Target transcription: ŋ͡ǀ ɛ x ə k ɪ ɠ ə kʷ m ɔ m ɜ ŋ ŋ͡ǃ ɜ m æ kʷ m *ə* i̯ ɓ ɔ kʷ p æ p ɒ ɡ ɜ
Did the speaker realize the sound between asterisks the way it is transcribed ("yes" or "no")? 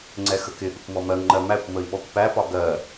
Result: yes